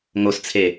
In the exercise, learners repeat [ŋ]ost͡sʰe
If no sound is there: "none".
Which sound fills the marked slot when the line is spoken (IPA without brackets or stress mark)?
ŋ